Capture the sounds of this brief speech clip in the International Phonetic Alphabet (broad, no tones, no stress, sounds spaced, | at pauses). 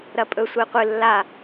ɾ ɐ pʼ ɵ sʷ ɨ i̯ qʷ ɨ lː a